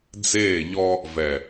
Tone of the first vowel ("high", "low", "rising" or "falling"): falling